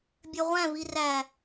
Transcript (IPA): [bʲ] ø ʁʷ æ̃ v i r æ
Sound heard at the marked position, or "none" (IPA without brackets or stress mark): bʲ